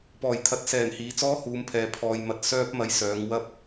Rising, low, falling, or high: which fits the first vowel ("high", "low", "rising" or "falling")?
low